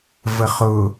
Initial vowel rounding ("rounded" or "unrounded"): unrounded